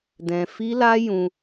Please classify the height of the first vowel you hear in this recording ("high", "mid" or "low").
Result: mid